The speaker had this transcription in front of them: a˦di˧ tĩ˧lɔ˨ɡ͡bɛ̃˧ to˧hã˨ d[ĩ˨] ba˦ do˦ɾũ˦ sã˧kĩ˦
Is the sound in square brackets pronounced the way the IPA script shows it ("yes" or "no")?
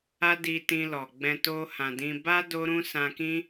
no